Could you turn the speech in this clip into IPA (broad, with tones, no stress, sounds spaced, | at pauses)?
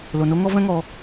l o˨ n o˧ ŋ ɔ˧ v ɛ̃˦ ŋ ɔ˧